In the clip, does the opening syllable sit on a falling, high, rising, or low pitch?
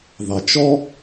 low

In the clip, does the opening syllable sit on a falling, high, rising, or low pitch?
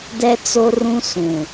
high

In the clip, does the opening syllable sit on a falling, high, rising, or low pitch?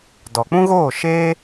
low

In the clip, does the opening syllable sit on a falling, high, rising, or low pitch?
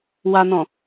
low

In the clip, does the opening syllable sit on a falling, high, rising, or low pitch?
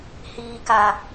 low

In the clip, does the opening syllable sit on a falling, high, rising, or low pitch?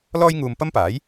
high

